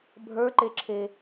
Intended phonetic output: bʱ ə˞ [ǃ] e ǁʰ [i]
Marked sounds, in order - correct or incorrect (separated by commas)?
correct, incorrect